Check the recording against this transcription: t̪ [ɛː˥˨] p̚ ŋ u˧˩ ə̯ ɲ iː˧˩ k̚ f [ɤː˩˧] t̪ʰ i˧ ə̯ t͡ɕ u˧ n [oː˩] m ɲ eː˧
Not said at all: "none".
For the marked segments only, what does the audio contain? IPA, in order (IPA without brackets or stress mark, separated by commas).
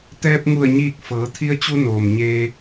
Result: ɛː˧, ɤː˩˧, oː˩